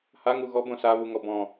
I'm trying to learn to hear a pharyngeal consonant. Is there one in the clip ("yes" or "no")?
no